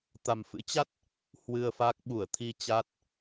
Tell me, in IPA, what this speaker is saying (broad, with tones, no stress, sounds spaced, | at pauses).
t̪ a˨˩ m f ɨ̰˧˥ t͡ɕ a˦˥ t̚ | h w ɨ˧ ə̯ f a˦˥ k̚ ɓ u˧˩ ə̯ t̪ʰ i˧ t͡ɕ a˦˥ t̚